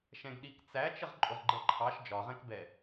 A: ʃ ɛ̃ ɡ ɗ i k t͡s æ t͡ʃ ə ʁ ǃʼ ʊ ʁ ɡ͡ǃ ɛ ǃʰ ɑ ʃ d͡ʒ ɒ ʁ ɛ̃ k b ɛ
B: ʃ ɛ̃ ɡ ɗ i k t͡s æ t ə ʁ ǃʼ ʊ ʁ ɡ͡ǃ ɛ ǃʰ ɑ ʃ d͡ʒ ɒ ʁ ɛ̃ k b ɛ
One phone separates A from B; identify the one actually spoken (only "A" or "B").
A